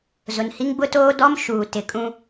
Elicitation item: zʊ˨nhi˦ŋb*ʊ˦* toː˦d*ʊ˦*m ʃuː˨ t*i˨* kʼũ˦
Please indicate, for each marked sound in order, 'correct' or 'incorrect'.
correct, incorrect: ɔ˦, incorrect: ɪ˨

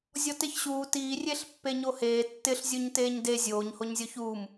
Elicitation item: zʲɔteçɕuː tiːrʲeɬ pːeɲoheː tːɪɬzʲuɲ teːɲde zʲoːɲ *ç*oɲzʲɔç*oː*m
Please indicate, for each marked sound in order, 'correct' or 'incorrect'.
incorrect: h, incorrect: uː

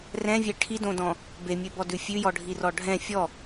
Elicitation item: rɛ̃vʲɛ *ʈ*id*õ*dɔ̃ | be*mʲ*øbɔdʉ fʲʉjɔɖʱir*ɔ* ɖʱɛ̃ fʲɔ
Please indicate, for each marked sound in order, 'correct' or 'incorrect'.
incorrect: ʈʰ, correct, correct, correct

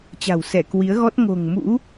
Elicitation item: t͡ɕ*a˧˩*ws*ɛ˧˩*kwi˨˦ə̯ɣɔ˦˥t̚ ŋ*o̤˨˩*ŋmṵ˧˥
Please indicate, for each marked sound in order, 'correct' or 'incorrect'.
incorrect: a̤˨˩, correct, correct

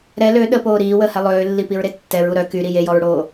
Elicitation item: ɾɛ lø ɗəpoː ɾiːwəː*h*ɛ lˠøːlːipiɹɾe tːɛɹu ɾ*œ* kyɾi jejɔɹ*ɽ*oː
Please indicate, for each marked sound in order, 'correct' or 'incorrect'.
correct, correct, correct

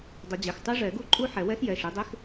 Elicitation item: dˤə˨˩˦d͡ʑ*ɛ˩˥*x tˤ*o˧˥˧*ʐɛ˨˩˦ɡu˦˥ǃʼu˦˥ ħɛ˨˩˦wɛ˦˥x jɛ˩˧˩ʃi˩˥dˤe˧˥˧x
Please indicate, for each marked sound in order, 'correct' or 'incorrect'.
incorrect: ɛ˩˧˩, incorrect: o˦˥

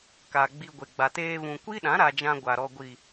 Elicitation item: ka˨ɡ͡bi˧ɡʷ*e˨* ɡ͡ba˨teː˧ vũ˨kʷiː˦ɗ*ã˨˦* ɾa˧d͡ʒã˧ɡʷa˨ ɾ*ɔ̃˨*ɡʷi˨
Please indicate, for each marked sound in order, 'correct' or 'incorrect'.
correct, correct, incorrect: ɔ˨

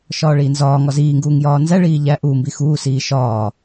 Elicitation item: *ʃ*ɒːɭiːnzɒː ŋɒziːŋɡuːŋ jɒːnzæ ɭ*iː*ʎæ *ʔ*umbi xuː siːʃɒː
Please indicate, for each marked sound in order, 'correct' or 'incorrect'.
correct, correct, correct

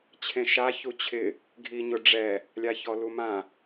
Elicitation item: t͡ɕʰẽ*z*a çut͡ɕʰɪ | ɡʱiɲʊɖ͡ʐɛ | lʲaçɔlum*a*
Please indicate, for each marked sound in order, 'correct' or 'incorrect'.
incorrect: ʃ, incorrect: ã

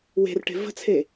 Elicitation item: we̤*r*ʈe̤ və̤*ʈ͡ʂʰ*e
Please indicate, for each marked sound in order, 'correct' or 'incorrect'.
correct, incorrect: t͡sʰ

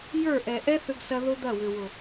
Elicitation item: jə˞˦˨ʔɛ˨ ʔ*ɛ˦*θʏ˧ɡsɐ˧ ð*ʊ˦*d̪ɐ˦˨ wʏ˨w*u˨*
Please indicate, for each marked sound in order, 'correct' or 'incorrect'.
correct, correct, incorrect: ʊ˨

